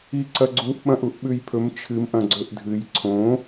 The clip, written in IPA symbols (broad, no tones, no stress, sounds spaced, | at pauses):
i ǀ ɐ ɡ͡ǀ u ʔ ɓ ɐ̃ ʔ u ʔ ɓ ʉ j pʰ ɵ m t͡ʃʰ ɨ m ʔ ɐ̃ ɡ͡ǀ ɵ ʔ dʱ ɨ j ǀʰ õ